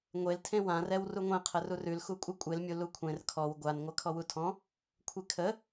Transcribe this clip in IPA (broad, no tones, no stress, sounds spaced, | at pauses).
ŋʷ e l tʰ ẽ w ã r ɛ w r u ŋʷ ẽ qʰ ə r u r ʉ l x u kʷʼ ɨ kʷʼ e l mʲ u l u kʷʰ ẽ r kʰ ɔ w ɡʷ a n ŋʷ ɜ kʰ ɔ w u tʰ ɔ̃ | kʷʰ e kʰ ə